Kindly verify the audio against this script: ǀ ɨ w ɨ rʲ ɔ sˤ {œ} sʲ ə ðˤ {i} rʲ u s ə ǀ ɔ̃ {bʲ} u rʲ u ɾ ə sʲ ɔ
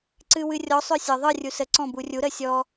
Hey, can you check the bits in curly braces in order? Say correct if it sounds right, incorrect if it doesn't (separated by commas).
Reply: correct, incorrect, incorrect